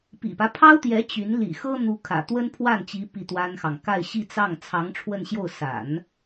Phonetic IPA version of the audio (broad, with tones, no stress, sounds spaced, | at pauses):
p ḭ˨˩ p ä˦ pʰ ɑ˥ ʊ̯ t̪ j ɛ˧˥ t͡ɕ y˧˥ n l ḭ˨˩ x ɤ˥ n̪ u˧˥ kʰ ä̰˨˩ t̪ w ə˥ n pʰ w a˥˩ n t͡ɕ i˧˥ p i˥˩ t̪ w a˥ n x ɑ˨ ŋ k a˥˧ ɪ̯ ɕ i˥˧ t͡s ɑ˥˩ ŋ t͡sʰ ɑ˧˥ ŋ ʈ͡ʂʰ w ə˥˧ n ɕ j o˥˩ ʊ̯ s a̰˨˩˦ n